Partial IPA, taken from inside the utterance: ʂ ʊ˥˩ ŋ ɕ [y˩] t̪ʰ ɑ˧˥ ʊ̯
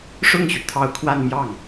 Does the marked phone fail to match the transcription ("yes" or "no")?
no